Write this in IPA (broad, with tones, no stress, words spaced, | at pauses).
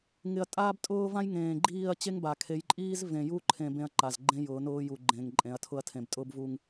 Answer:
ŋɪ˨ɐ̯ tʼaː˦btʼʊː˦vã˦jŋẽː˨ ɡ͡ǃiː˦˨ɐ̯t͡ɕe˦ŋ ba˨kʰe˨˦jǃʼiː˦z vẽ˨ju˦˨ ǃʰẽ˦bẽ˦ɐ̯ǃa˨z ɡ͡ǃẽ˦jʊː˨˦ nʊː˦ju˨ ɡ͡ǃẽː˨ŋǃʼẽ˨˦ɐ̯ tʰʊ˦ɐ̯tʰẽ˨btʼʊː˦bvu˨ŋ